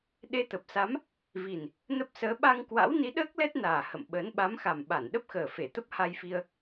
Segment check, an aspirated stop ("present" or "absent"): absent